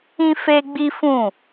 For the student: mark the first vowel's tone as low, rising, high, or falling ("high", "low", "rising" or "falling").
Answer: high